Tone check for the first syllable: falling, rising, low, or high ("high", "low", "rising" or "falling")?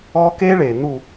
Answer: high